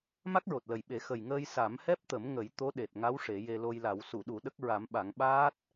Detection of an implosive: present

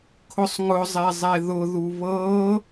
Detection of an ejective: absent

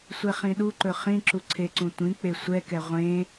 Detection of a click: present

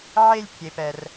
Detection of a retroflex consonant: absent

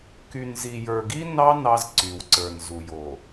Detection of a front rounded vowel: present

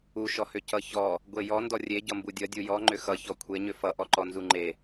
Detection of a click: present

